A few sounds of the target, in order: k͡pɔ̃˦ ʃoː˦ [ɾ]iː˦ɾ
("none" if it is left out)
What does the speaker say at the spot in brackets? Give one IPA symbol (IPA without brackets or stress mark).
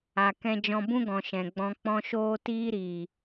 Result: t